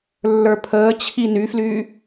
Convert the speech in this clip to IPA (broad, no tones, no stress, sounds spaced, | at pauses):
lː ə˞ pʰ əː t͡ɕʰ i n y f l yː